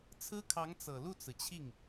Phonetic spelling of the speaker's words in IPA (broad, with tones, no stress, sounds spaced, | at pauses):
t͡sʰ ɹ̩˥ kʰ ɑ˧˥ ŋ t͡s ɤ˨˩ l u˥˩ t͡s ɹ̩˩ t͡ɕʰ i˥˩ ŋ